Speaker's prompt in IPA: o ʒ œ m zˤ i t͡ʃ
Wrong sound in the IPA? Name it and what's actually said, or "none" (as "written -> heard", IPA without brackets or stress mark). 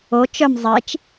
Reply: ʒ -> t͡ʃ